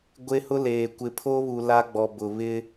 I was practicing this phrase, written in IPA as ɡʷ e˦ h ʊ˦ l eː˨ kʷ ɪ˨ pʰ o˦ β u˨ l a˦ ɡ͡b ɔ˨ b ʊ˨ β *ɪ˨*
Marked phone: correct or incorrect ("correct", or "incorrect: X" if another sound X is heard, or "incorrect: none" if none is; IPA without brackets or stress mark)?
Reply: incorrect: ɪ˦